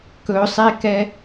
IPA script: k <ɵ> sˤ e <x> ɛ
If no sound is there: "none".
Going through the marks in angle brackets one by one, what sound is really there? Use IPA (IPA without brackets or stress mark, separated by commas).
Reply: ɵ, k